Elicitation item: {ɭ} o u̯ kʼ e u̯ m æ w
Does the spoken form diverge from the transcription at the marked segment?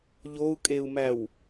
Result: yes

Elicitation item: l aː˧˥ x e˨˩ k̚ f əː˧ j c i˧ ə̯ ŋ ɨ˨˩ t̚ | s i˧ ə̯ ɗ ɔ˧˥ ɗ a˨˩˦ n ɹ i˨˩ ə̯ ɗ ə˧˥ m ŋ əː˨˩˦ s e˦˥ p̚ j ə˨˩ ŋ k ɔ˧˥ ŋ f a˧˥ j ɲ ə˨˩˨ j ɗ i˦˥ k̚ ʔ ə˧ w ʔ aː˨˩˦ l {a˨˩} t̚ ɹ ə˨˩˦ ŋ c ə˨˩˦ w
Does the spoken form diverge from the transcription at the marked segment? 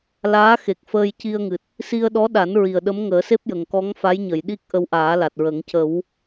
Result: no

